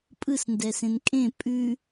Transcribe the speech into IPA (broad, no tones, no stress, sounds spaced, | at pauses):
pʼ ɯ s n d ɛ s ẽ n kʼ ẽ pʼ ʉ